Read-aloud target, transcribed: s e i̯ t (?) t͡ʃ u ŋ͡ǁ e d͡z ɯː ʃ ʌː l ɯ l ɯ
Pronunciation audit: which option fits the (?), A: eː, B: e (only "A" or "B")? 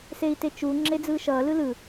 B